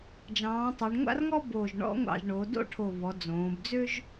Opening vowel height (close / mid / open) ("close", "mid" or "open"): open